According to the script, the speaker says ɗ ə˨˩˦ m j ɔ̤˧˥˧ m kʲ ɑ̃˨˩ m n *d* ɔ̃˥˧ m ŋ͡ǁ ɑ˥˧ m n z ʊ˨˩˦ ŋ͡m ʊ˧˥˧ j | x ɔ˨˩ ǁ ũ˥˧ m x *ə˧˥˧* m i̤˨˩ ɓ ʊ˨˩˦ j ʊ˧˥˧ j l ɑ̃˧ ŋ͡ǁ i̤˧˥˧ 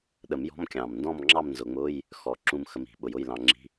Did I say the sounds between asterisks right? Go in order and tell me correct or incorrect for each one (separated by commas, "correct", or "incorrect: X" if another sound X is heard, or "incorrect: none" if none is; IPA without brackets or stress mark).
correct, incorrect: ə˧